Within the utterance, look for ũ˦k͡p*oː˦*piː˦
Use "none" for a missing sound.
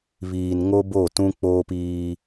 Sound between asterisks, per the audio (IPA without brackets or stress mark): oː˦